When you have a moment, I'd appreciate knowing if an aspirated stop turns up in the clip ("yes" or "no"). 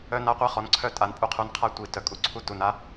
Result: yes